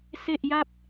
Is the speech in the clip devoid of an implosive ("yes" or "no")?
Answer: yes